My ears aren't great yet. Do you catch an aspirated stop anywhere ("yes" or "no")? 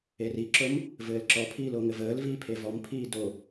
yes